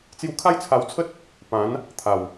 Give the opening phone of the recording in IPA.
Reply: t͡s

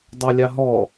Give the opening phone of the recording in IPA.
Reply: dˤ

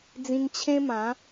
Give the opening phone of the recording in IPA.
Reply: d͡z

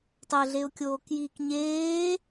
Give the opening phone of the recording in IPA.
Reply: tˤ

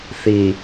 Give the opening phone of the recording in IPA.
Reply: θ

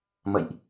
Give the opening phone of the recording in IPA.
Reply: m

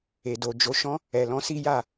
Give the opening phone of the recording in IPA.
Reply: e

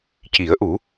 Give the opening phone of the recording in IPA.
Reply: c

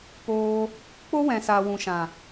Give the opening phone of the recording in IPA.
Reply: p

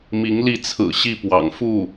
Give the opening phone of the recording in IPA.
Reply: m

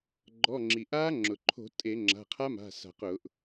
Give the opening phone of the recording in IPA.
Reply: ɡ͡ǃ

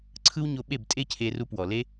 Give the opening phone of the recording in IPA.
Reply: ǀʰ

